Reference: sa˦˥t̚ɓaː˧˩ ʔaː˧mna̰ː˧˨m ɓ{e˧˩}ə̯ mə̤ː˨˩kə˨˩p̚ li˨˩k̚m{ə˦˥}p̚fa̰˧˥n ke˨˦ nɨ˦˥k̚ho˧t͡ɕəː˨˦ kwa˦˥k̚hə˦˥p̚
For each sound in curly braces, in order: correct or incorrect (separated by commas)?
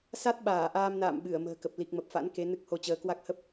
incorrect, incorrect